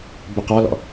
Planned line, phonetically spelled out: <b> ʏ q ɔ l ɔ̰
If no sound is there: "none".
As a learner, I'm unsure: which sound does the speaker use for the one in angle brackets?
b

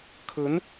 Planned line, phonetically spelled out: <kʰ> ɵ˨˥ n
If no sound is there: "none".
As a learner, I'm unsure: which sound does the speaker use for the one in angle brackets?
kʰ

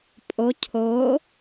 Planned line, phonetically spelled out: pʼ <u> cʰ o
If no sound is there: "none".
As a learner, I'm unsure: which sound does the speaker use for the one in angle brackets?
o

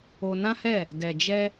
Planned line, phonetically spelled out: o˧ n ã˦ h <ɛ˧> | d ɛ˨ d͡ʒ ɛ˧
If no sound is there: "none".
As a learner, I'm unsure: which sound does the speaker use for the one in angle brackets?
ɛ˦˨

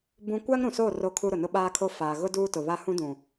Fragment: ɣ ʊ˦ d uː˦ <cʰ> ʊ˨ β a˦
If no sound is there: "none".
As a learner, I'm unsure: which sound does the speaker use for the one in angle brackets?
t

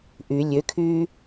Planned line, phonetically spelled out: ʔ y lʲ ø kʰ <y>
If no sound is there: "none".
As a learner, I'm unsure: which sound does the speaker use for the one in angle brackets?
yː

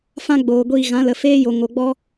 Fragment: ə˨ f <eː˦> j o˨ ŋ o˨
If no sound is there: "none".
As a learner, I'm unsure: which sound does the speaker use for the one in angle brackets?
eː˦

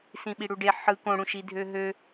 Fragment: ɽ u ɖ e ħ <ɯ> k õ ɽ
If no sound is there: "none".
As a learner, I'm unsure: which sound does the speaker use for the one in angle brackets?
ɯ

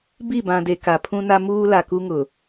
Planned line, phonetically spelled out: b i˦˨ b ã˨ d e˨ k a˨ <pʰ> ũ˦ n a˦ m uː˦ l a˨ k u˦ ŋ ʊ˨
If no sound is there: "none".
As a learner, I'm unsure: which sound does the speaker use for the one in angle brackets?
pʰ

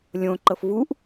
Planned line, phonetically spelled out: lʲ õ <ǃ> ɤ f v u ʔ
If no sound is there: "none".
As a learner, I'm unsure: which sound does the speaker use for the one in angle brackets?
ǃ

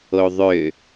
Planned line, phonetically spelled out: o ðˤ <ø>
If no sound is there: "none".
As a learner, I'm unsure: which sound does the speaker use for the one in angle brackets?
ø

